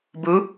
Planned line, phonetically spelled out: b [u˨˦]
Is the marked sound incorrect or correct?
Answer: correct